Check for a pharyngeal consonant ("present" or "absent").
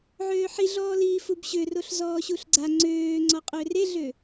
present